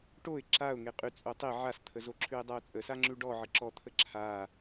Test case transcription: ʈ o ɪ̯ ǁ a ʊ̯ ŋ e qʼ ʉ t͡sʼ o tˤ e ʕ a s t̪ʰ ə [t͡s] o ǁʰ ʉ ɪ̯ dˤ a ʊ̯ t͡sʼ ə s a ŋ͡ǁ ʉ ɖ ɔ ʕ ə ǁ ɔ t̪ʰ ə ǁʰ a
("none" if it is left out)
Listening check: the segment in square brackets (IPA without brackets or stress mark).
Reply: z